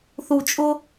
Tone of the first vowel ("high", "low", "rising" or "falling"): low